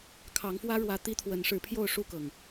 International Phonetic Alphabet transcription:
kʰɑ˨˦ŋfwä˦ɻwä˨˦ t̪i˦t̪ʰwə˨˦nʂɻ̩˨˦pʰjo˥˨ʊ̯ ʂu˥˨kɤ˩ŋ

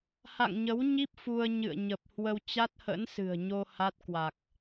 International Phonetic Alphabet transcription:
ha̰˧˨ŋɲə˨˦wɲi˦˥p̚ fu˧ə̯ɲɨ̰˧˨ə̯ ɲə˨˩p̚hwə˧w t͡ɕa˦˥t̚hə̰˧˥nsɨ̤˨˩ə̯ɲo˧ ha˦˥t̚ kwa˨˩k̚

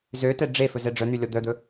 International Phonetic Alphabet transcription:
zøtɛ ɖ͡ʐe fɵzɛɖ͡ʐœn̪y lʲɔd̪œd̪ɵ

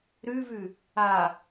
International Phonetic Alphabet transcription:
ɾʉvʉ | a

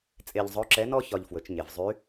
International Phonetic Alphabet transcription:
t͡sʼe˧ʎzˤɵ˧˥ǁɛ˧˥nɔ˥ çɒ˧ʎfwɵ˩˧t͡ʃɲe˩vzˤy˧˥

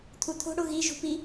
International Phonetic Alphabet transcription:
t̪ʰut̪ʰo̤ ɽoɣi ʒṳpi

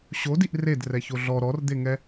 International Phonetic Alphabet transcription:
ɕodiʔ redrɛço ɮɔ ɾɔrd̪eŋɛ

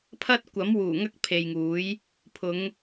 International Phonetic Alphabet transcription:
pʰɐ˥t̚ kʷɐ˨˥mwuː˨˩ ŋɐ˥k̚pʰe˨jŋuː˨˥j | pʰʊ˨˧ŋ

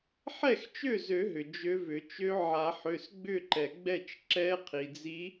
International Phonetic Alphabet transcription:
ħɛ˥˩xt͡ʃø˥˩zø˨˩˦ɦʏ˩ d͡ʒø˧˥vʏ˨˩˦ t͡ʃø˧˥ʕa˨˩˦ħø˩˧˩s ɡ͡bʏ˥˩ǃɛ˩ɡ͡bɛ˥˩t͡ʃ ǁɛ˧˥qʰi˩d͡zi˧˥

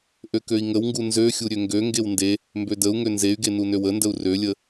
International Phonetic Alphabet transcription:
ʔøkøi̯ŋəwŋɡu nzøxʲu ɾʲøŋɡøŋɡew nde | mbødəu̯ŋø nzey̯ɡe nunøwəndəu̯ rølʲə

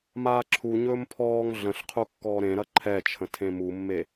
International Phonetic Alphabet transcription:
maːǁʰuɲɵːm pʰɔːŋ ɮə̃ɬqʰu kːɔːɾẽɾɐ ǃʰɛt͡ʃʰə̃ tʰẽmumːe

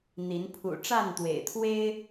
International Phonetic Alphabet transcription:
n̪i˨˦n pʰṵ˨˩ʈ͡ʂa˥˨n t̪wḛ˨˩ɪ̯t̪ʰwe˦ɪ̯

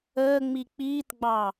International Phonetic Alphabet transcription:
əːŋ͡mi k͡piːtɡ͡bɑ

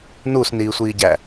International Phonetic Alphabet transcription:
nusniːsʷiːɟæ

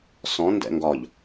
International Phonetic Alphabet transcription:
sɔ̃ ndɛ̰ŋɡɒʎ

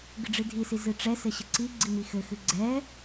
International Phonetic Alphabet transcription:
ɡɨɖ͡ʐɨdʱisi zɨʈ͡ʂɛsɘ ɕɘǀiɡ͡ǀi mixɘxɨ ɡ͡ǀɛ

